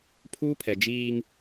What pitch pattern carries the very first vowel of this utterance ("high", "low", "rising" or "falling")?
high